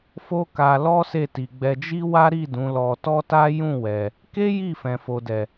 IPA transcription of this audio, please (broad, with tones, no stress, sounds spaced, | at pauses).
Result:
f o˦ k a˧ l ɔ˦ s e˦˨ t i˨ ɡ͡b ɛ˧ d͡ʒ i˦ w a˦ ɾ i˦˨ d ũ˨˦ l ɔ˧ t ɔ˦ t a˦ j ũ˦˨ w ɛ˨ | k e˦ j i˦˨ f ɛ̃˨ f o˨ d ɛ˨